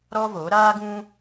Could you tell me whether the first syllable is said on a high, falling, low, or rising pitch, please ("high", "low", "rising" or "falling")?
high